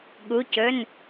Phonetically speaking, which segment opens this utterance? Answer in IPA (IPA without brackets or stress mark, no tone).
ɠ